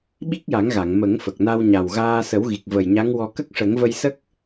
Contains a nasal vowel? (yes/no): no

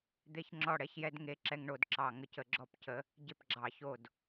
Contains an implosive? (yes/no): no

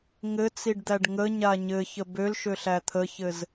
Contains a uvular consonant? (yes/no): no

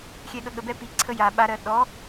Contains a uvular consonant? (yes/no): no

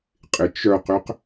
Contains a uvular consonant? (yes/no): yes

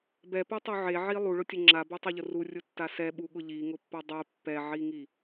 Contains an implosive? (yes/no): yes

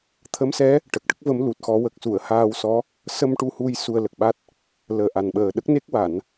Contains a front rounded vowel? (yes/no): no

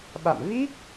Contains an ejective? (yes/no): no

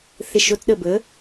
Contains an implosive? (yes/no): yes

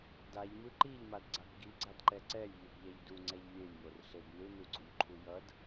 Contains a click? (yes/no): yes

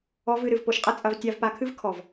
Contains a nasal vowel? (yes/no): no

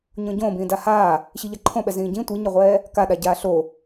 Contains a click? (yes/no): yes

